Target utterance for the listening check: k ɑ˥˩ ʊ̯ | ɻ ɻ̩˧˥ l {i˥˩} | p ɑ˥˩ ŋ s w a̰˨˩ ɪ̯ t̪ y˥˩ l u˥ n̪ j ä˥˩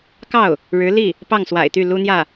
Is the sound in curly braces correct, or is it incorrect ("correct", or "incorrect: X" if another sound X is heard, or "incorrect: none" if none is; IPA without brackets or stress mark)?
correct